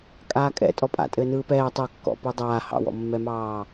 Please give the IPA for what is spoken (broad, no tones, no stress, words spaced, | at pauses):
kʼaːkʼɛ̰ tʼɔpʼa̰tʼɘː nɯːpɛː tˤɜkːɔ̰ pɯdˤaː hɑ̰wɔ̰mːɛmɑː